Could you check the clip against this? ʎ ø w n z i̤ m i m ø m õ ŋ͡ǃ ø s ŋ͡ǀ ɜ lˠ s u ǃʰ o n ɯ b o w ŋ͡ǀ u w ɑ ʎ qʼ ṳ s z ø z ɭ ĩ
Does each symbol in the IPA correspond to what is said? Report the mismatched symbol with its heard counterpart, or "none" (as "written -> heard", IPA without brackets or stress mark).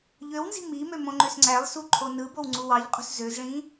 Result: ɜ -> æ